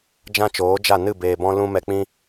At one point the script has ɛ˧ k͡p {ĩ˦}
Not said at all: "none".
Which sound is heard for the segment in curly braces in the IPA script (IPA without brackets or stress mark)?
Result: ĩ˦